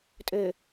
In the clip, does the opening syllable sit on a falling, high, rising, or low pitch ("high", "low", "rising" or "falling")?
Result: low